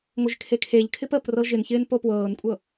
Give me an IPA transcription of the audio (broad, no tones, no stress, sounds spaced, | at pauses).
ŋʷ ɪ ʒ kʰ e kʰ e ʎ kʰ ɪ p ə p r ɤ ʒ ɪ n ç ɪː n p o p w ɤː n kʷʼ ɤ